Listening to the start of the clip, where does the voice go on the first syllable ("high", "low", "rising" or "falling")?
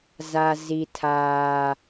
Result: high